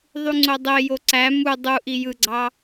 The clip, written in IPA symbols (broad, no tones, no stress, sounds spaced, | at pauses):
ðˤ y ŋ͡ǀ o dˤ e j o ǀ æ m u dˤ u ʔ i j ɯ ɡ͡ǀ ɑ